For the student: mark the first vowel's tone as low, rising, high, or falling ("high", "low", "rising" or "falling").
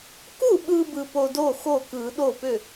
falling